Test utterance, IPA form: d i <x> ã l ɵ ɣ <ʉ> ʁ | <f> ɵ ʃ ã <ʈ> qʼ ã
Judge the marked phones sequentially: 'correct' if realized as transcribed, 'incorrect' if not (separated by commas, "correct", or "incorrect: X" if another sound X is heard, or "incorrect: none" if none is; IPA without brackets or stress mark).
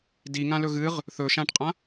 incorrect: ŋ, incorrect: ɨ, incorrect: θ, correct